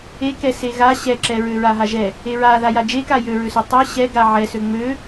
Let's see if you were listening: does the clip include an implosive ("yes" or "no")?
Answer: no